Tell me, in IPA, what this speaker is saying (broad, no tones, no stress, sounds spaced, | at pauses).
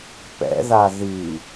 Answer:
p ɛ̰ ð a ð i